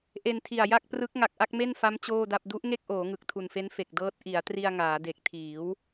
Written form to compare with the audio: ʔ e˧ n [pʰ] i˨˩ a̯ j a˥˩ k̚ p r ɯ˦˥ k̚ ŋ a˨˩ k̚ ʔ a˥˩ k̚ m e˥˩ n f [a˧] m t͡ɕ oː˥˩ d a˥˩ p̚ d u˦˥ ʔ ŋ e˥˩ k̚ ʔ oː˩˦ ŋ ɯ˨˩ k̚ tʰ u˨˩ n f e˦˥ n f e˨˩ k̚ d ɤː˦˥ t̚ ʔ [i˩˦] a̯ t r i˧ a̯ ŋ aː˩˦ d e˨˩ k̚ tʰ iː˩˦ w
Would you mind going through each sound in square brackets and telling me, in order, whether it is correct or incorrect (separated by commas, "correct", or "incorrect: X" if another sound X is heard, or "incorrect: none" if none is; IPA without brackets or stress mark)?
incorrect: tʰ, incorrect: a˦˥, correct